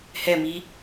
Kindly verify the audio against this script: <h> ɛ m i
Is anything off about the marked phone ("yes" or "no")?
no